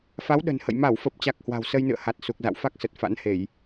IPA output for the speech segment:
f a˨˦ w ɗ ə̤˨˩ n h ə̰˧˨ j m a˧˩ w f ə˨˩ p̚ t͡ɕ a˨˩ k̚ h w a̤˨˩ w s ə˧ j n ɨ̰˧˨ ə̯ h a˨˩ t̚ s u˨˩ k̚ z a̰˧˨ w f a˦˥ k̚ s ə˨˩ t̚ f a̰˧˥ n h e˧˩˨ j

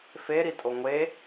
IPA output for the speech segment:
f e ɾ i tʼ o ŋʷ e

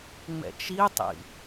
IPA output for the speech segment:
ŋ͡m ɛ̰ t͡ʃ i tˤ ḭ

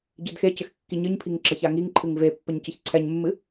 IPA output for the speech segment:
ɟ ɨ d x e c ɘ x kː i ɲ ɨ ɲ pʰ i ŋ ǁ ɐ ç a ŋ i ŋ ǃʰ ɨ ŋ v e pː ɘ ɲ c ɨ ç ǀʰ ɛ ɲ mː ɨ

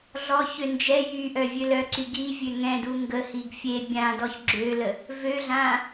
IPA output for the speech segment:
ɮ ɔ ç ø n d͡ʒ ɛ j y ʔ œ vʲ ø l œ ǀ y ɡ i vʲ ø ŋ ɛ̃ d u ŋ ɡ ə h i ɡ fʲ e bʲ ã d ɔ ç ɡ͡ǁ ø l ə | v ø ɮ ã

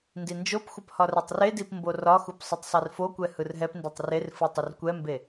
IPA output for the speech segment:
n d i n d͡ʒ o p xʷ ə p h ɒ r ɛ tˤ r e d i p m b o r ɒ x u p sˤ ə tˤ sˤ i r f o kʷ ɛ h ɯ r ɦ ɛ p n d e tˤ r e r f ɯ tˤ ə r kʷ ɛ m b e

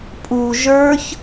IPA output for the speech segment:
pʼ u ʒ ə˞ ç

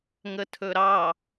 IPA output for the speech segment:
ŋ ə tʰ ɵ ɾ ɑ

